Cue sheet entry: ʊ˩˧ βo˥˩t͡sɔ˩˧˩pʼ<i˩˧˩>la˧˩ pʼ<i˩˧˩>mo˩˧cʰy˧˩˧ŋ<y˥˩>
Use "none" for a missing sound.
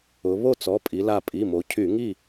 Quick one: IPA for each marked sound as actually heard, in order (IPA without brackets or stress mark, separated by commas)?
i˩˧, i˩˧˩, i˥˩